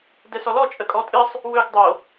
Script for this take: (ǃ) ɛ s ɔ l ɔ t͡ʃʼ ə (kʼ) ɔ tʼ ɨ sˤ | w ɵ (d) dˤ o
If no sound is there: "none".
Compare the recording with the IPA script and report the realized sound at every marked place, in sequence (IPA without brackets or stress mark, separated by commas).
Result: d, kʼ, ɡ